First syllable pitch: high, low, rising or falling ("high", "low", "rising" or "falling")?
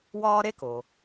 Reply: high